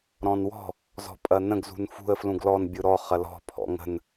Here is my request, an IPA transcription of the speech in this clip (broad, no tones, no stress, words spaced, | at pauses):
ɾɔ̃nwɔ̤ | zɔ̤pʼɐnə̃ɡ zṳnfṳə̯ flũɡlɔn bʲɯɾɔ χɐlɔ̤ pʰɔ̰ŋə̤n